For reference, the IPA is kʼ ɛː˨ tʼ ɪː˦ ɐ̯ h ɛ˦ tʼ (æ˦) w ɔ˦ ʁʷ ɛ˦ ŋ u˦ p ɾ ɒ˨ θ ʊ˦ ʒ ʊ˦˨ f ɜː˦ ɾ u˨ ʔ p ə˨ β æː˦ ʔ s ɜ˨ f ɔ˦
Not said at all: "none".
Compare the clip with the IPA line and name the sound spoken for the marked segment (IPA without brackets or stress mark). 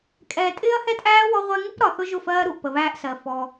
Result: æː˦